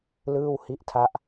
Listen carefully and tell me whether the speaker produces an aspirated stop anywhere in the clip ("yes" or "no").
yes